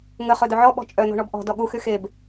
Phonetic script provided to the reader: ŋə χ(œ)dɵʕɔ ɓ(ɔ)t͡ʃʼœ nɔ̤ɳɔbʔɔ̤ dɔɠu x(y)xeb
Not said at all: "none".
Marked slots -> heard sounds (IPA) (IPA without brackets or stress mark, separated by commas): ɵ, ɔ̤, y